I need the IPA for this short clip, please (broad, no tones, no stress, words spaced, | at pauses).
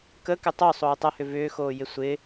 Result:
kə kɪtˤo sˤoːtˤɐhʏ vʏːxoːjɪ sʷɪ